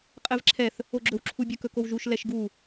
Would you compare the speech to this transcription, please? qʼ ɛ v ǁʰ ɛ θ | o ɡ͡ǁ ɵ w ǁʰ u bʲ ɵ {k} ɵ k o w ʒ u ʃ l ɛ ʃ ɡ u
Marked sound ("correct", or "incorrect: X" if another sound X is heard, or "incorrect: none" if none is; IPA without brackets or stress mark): correct